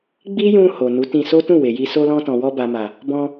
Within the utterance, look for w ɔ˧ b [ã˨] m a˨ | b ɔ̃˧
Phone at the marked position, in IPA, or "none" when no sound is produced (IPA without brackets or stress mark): a˨